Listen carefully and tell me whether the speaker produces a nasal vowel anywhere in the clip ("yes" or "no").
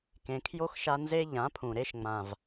yes